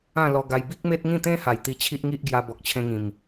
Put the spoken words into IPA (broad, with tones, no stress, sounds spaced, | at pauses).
ã˥˧ l ɔ˧ ɡ a˧ j b i˦ k̚ m e˦ t̚ ŋ ĩ˥˧ t̪ ẽ˦ h a˨˩ j t̪ i˧ t͡ɕʰ i˦ ʔ ŋ i˦ ʔ ɡ j a˧ b ɔ˨ k̚ t͡ɕʰ ẽ˧ ŋ ĩ˨˩ m